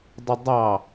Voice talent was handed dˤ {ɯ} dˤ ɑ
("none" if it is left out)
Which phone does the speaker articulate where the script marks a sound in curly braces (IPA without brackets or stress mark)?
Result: ɯ